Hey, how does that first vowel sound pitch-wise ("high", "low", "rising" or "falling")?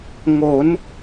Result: rising